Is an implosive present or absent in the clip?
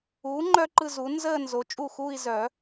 absent